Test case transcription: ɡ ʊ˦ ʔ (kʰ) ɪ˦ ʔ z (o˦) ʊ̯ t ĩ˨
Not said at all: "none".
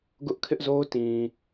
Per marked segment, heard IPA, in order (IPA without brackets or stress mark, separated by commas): kʰ, o˦